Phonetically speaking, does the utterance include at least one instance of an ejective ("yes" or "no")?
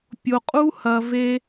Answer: yes